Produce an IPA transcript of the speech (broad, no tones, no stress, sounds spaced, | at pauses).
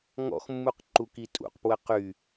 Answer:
ŋ ɔ̰ x mː u q ǃ u k i tʼ ṵ q p w ə q y